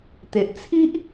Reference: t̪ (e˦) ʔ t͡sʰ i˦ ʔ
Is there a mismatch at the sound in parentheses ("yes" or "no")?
yes